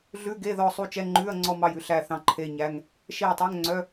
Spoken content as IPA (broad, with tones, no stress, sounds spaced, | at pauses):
ɮ ʉ˧˥˧ ɡ e˧˥˧ ð ɔ˦˨ sˤ u˦˨ t͡ʃ ɛ˧˥˧ ŋ͡ǃ ʉː˧˥˧ ɐ̯ ŋ͡ǀ ɔ˦˨ m ɑ˦˨ j ʉ˧˥˧ ɬ æ˦˨ θ ɑ̃˦˨ ǃʰ e˧˥˧ ɲ æ˧˥˧ ŋ | ʃ e˦˨ j tˤ ø˧˥˧ ŋ ŋ͡ǀ œ˧˥˧